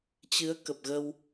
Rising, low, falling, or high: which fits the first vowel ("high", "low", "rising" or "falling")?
rising